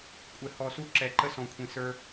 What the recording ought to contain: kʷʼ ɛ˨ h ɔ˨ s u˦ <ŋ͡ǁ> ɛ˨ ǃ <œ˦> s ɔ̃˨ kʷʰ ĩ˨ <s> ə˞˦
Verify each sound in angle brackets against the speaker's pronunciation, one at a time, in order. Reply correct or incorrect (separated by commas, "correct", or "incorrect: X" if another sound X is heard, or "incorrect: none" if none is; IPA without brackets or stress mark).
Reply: incorrect: ǁ, incorrect: ə˦, correct